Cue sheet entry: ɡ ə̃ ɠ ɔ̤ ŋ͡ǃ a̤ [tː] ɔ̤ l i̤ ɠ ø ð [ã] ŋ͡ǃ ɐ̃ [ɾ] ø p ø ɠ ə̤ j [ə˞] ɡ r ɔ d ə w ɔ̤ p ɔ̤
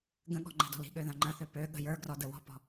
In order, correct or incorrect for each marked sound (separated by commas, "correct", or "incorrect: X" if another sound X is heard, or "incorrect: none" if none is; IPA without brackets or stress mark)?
incorrect: d, correct, incorrect: θ, correct